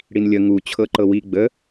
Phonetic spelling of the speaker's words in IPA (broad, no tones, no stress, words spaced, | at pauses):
ɽinlʲə ŋu t͡ɕʰɤǃɤwi ɡ͡bə